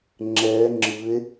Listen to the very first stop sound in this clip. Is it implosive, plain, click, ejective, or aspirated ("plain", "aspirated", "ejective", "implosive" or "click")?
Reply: click